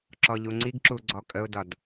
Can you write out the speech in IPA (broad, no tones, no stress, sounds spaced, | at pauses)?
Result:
ǁ ɔ ʎ u ŋ͡ǀ i ɡ ǁ u ɡ͡ǀ ɔ kʼ ə ʊ̯ d ɒ d